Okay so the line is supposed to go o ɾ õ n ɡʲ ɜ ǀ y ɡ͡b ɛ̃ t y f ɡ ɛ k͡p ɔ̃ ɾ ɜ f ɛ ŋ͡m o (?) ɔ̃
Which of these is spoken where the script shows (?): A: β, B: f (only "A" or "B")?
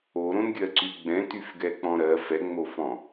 B